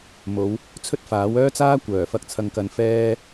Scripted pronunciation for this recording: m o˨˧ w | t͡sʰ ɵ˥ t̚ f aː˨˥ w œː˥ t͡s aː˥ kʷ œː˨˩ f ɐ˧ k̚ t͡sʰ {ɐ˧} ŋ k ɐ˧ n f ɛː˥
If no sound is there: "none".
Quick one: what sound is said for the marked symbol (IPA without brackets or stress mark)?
ɐ˧